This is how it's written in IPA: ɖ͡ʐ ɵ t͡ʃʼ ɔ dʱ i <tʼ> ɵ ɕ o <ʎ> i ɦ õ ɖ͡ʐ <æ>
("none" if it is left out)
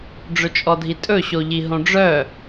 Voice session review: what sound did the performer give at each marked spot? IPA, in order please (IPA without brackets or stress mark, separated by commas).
tʼ, ʎ, œ